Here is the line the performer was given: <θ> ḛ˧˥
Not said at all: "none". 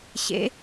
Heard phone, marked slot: ɕ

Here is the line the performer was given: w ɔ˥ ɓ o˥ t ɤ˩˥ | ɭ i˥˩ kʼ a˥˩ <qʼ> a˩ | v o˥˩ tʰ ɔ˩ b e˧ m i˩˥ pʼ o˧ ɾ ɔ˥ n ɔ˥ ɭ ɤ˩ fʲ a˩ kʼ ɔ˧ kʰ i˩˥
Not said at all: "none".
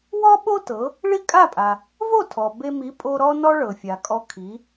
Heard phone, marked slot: pʼ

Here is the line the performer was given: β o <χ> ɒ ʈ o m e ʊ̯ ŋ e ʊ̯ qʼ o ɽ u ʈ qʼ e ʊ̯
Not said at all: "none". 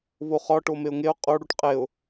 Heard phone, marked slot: χ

